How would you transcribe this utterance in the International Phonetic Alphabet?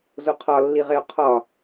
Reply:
zoqʰɒ lːiʁeo̯qʰɒ

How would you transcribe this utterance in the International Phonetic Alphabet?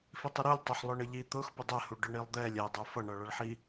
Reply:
fitˤəɾulʲ tˤʊħlˠʊɳəʎi t̪ʊx pədˤɛ huɖʊɳilˠd̪ɛlʲ ɛ dˤə˞fʌ ɳʌɭʌɭħi

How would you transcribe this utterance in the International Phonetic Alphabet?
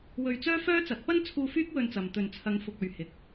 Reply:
wɵ˧ɥt͡sœː˥ fœː˥ t͡sɐ˨˥t̚pɐ˥n t͡sʰuː˧ fyː˥k̚wɵ˧nt͡sɐ˨m t̪ɵ˨nt͡sʰɐ˨˧ŋ fʊ˨k̚ɵ˨ɥ hɪ˨k̚

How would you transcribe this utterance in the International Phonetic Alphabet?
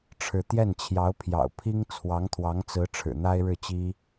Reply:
ʈ͡ʂʰɻ̩˥˧ t̪jɛ˥˩nt͡ɕʰjɑ˧˥ʊ̯pʰjɑ̰˨˩ʊ̯ pʰi˥ŋ t͡sʰwɑ˧˥ŋt̪ʰwɑ˧˥ŋt͡sɹ̩˧˥ ʈ͡ʂʰɻ̩˨˩n̪a˥ɪ̯ɻɻ̩˥˩t͡ɕi˥

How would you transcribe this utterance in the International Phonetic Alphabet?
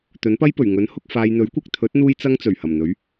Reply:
t̪ɵ˨˥npɐ˥jpɵ˨˩ɥ ŋɵ˨˥n hʊ˧k̚ faː˨jn̪ɵ˨˥ɥkʷɐ˨k̚t̪ʰɵ˨˥t̚ n̪uː˥jt͡sɐ˥ŋt͡sɵ˨˩ɥ hɐ˨˩mn̪ɵ˨˥ɥ

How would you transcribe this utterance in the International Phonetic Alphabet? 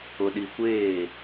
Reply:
ʊ˨ɗi˨kʷeː˦˨

